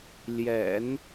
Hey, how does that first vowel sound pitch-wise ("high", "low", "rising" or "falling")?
low